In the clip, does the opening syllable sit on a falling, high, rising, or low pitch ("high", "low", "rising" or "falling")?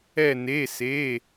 falling